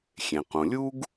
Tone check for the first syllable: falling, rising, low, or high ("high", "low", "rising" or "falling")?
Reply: low